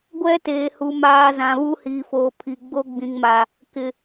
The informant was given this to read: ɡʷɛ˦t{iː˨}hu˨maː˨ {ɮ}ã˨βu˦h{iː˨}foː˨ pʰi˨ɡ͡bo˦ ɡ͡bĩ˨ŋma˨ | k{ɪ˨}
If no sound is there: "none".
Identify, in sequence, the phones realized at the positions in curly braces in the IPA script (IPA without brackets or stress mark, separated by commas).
eː˨, z, iː˨, ɪ˨